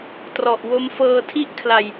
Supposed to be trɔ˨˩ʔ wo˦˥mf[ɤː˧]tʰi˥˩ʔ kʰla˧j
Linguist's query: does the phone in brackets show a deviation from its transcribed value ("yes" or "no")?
no